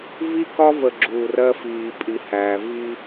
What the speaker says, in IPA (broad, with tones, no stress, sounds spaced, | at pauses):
v i˦ k ɒ˦ v ə˨ ɡ͡ǁ uː˨ r ɜ˦ f iː˨ pʼ i˨ h æː˨ v i˦